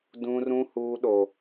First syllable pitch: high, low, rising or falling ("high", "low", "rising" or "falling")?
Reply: high